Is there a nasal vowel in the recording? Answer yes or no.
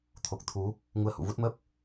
no